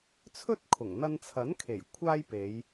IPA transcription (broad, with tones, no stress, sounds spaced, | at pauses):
t͡sʰ ɵ˥ t̚ kʰ ʊ˨˩ ŋ n̪ ɐ˧ n t͡sʰ ɐ˨˥ n kʰ e˨˩ j kʷʰ aː˥ j p e˨˧ j